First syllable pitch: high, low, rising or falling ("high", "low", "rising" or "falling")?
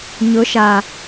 rising